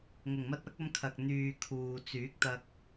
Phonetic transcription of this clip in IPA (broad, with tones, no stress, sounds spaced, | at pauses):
ŋ ʊ˨˩ ŋ m ɐ˧ t̚ ɐ˨˥ k̚ ɐ˧ m kʰ ɐ˨ k̚ n̪ yː˨ kʰ uː˨ t͡s yː˨˥ k̚ t̪ ɐ˧ k̚